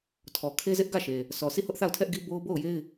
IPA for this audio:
tʰ ɔ˨ kʰ e˦ z ɪ˦ ʔ ɡ ä˦˨ ʃ e˨ | s ɔ˨ sʰ i˦˨ h ʊ˦ ʔ θ a˦˨ ʊ̯ tʰ ɛ˦ ʔ ɡ i˦ b o˦ ʊ̯ b o˦˨ ʊ̯ j e˦ ɪ̯

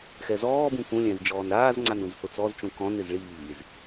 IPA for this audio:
x ɛ z ɔː b ũ k ũ lʲ ɛ̃ z d͡ʒ ɔː n ɾ aː z ŋ͡ǀ a n ũ z h ʊ t͡s ɔ z t͡ʃ ũ k ɔ̃ n ɪ z ɭ iː z

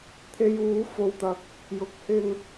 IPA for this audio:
t̪ʰ e˧ j uː˨˥ f o˨ w t̪ ɐ˨˥ k̚ | j ʊ˨ k̚ h ɪ˧ ŋ

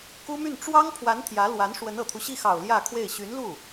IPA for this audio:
k u˥ m y˥˩ n ʈ͡ʂ w ɑ˥ ŋ pʰ w a˧˥ n t̪ʰ j ä˧˥ l w a˧˥ n ʂ w ə˧˥ n ɤ˨˩ t̪ʰ u˦ ɕ i˥˩ x ɑ˨˩ ʊ̯ l j ä˥˧ kʰ w e˥˩ ɪ̯ ɕ y˧˥ n l u˥˩

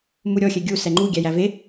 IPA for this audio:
m u ɾʲ ɔ xʲ ɛ ɡʲ u s ɛ ŋ͡ǃ u ɡʲ æ j æ v e

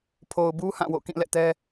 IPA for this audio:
pʰ o˨ ʊ̯ b u˦ h ã˦˨ w o̰˦˨ k ĩ˦˨ l ɛ̰˦˨ t ɛ˦

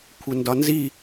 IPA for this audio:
kʷʰ ə n d ɒ n z i

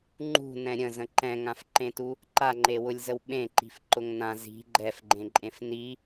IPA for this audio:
ŋ͡ǃ ṳ n ɛ̃ ɾʲ ə̃ z ə̃ ǃ ɛ̃ ŋ ã f ǃ ẽ t u | ǃ a ŋ͡ǃ e w ʊ lʲ z ə w ɓ ẽ ǃ i̤ f ǃ ʊ ŋ n ã z i̤ ɡ͡ǃ ɛ f ɡ͡ǃ ẽ ǃʼ ẽ f n i

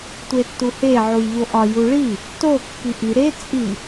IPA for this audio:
tʷ e tː u h e ʕ u j ʎ o ʔ ɒ j u ɭ i | t o kː i ʔ i ɾ e t͡sʼ i

